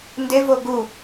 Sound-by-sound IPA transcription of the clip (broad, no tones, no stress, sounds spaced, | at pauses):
n d e v o ɡ u